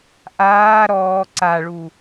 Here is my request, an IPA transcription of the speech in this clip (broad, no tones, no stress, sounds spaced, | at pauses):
ʔ aː ɾ ɔː ǀ a ɭ u